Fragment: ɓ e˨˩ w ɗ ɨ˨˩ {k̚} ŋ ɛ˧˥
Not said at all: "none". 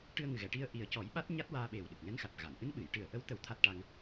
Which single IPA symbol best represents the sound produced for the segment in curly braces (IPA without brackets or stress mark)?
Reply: k̚